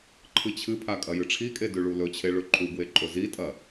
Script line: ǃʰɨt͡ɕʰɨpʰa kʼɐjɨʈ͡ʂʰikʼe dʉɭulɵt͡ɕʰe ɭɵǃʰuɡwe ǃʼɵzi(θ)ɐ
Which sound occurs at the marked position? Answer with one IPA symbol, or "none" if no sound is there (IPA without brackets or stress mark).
tʼ